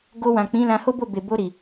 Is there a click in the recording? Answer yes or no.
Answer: no